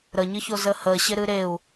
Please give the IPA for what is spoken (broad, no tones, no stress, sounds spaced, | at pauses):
ɾ ə ɲ ɨ ç o z ə h ə ɕ ɪ ɾ ɨ ɾ e u̯